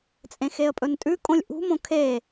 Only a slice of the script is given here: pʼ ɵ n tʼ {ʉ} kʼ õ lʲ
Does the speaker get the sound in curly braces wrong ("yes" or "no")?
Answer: no